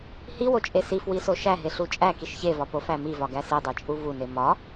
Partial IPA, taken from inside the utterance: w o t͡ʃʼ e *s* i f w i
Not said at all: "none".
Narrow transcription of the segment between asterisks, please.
s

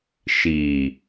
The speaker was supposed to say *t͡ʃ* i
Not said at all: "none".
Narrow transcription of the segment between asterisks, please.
ʃ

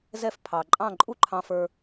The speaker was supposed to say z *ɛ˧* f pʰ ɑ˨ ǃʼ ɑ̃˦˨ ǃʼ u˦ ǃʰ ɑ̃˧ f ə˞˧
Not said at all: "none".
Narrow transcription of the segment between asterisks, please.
ɛ˧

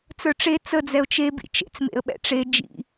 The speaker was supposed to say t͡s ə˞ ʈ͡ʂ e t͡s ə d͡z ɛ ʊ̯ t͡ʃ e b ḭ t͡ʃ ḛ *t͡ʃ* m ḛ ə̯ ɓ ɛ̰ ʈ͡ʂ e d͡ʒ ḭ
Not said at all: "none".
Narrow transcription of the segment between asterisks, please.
t͡s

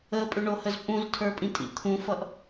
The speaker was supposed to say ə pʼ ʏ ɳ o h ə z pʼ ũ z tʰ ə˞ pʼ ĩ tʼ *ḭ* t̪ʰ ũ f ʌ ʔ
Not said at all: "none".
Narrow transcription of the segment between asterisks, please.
ḭ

